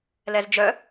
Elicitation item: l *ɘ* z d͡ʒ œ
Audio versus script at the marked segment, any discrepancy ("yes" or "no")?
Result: yes